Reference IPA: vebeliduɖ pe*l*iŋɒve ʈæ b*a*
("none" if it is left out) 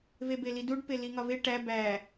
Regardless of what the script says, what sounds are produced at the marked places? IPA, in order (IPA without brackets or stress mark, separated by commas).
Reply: l, æ